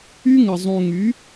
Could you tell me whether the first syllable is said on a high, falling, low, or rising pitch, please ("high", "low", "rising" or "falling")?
high